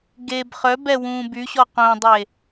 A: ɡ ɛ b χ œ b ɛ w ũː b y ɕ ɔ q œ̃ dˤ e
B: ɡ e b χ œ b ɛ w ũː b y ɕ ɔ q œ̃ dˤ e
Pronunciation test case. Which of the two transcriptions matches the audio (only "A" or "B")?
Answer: B